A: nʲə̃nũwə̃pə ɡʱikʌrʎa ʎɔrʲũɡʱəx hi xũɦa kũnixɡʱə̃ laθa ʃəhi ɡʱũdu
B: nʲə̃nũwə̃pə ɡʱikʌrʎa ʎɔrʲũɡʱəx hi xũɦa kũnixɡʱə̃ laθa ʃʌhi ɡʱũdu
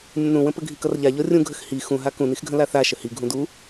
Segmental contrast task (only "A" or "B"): A